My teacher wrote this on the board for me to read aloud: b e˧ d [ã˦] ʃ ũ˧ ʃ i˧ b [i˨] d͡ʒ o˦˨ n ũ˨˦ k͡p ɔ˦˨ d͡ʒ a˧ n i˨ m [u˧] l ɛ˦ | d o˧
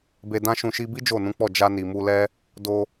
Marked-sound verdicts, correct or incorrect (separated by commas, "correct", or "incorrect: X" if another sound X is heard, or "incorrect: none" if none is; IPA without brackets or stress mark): correct, incorrect: i˦, correct